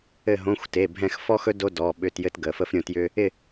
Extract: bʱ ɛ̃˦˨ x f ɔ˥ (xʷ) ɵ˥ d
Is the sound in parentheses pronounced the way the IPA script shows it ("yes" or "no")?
no